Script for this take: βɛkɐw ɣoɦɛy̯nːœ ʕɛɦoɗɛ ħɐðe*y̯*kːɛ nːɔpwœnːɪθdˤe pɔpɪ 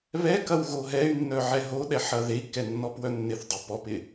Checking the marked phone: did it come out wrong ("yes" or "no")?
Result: yes